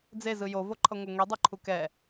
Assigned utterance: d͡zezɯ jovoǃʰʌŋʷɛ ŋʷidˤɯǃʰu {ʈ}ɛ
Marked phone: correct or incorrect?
incorrect: k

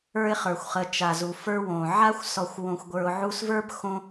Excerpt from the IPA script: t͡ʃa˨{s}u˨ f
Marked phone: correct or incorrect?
incorrect: z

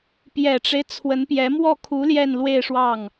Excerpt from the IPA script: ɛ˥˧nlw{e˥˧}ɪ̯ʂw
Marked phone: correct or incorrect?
correct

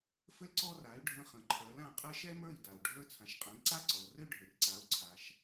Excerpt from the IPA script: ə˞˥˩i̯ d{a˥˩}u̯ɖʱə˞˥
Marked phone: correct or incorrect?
incorrect: a˩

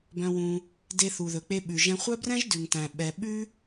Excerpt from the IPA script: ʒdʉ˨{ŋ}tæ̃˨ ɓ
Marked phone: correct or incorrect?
correct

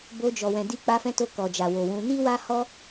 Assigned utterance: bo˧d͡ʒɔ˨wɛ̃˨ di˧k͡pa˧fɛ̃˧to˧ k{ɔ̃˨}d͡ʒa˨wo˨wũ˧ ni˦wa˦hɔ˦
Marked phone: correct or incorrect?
incorrect: ɔ˨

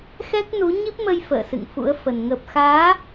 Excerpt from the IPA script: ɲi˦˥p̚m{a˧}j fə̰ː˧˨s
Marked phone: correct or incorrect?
incorrect: ə˧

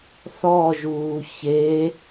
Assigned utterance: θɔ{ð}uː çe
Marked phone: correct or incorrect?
incorrect: ʒ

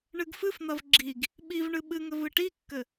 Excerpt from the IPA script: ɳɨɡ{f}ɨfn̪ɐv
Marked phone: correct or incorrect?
correct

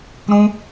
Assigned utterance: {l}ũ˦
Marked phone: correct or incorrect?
incorrect: ɾ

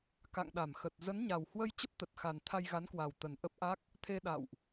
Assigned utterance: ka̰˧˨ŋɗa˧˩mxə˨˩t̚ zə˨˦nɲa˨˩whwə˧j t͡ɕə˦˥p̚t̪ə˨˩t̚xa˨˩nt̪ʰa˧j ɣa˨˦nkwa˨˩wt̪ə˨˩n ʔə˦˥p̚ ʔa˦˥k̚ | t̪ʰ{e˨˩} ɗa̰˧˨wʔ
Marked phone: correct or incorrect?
incorrect: e˧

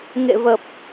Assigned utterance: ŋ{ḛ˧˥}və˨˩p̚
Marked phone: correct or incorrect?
incorrect: ḛ˧˨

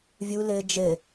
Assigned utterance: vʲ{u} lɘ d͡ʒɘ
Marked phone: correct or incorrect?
correct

